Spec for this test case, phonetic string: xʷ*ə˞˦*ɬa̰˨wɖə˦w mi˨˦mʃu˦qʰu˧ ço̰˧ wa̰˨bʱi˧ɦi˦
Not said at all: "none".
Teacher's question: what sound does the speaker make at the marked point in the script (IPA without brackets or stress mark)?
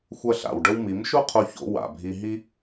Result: ɐ˦